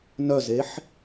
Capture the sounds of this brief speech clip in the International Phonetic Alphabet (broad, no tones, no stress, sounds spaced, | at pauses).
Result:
n œ z e ħ